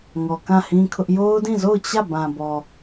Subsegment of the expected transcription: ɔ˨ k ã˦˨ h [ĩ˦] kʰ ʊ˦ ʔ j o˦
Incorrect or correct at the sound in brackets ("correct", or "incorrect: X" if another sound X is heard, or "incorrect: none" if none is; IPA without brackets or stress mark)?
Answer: correct